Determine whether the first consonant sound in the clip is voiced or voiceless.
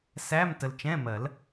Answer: voiceless